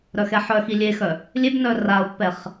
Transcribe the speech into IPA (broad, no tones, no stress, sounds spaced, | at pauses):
ɾ œ x ɛ ħ œ x i lʲ e x œ | lʲ e b n œ r a ʊ̯ pː ɛ χ